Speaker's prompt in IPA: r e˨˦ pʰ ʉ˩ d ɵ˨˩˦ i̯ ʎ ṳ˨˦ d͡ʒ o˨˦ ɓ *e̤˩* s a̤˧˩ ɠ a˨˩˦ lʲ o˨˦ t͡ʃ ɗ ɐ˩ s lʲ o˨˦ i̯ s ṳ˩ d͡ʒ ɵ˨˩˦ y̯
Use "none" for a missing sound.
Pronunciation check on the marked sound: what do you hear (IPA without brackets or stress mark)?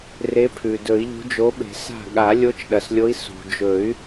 e̤˨˩˦